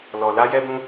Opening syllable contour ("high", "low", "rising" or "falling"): low